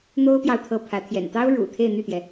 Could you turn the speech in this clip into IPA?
n̪ o˥ ʊ̯ p j ɑ˥˧ ʊ̯ t̪ʰ ɤ˥˩ pʰ ä˧˥ t̪ʰ j ɛ̰˨˩ n t̪ ɑ˥ ʊ̯ ɻ ṵ˨˩ t̪ʰ e˥˧ ɪ̯ n̪ y˥˩ t̪ j ɛ˩

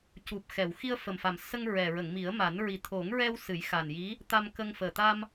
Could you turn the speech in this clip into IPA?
c u˨˩ p̚ x ɛ˨˩˨ w x i˧ ə̯ f ə˨˩ m f a˨˩ m s ə˧ ŋ ɹ ɛ˨˩ ɹ ə˨˩˨ ŋ m i˨˩˦ ə̯ m a˨˩˦ n ɹ i˨˩˦ t̪ʰ o˨˩˦ ŋ ɹ ɛ˧ w s ɨ˨˩˦ j x a˨˩ n j i˧˥ | t̪ a˧ m k ə˧ ŋ f əː˨˩ t̪ a˧ m

